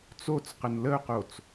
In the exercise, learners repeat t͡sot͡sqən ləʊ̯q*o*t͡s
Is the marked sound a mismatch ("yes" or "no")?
no